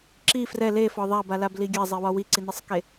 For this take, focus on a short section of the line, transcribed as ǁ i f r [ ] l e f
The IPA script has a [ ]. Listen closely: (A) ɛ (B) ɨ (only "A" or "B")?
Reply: A